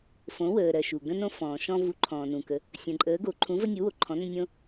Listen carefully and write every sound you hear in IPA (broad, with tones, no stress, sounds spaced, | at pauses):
f õ˨˥ w əː˨ ɾ ɜ˨ ʃ u˨ ɡ ə̃˦ n õ˦ f ɔ̃ː˨ ʃ ɔ̃˦ v u˨˥ ǃʰ ɔ̃ː˨ n ũ˨ k ə˨˥ | sʲ ə̃˨ ǃʼ əː˨˥ ɡ o˨˥ ǃʰ ũ˨˥ v ə˦ nʲ u˨˥ w o˨ ǃʰ ɔ̃˨˥ n ə̃˦ nʲ õ˦